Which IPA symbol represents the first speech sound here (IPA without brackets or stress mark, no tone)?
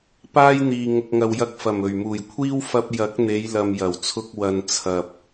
p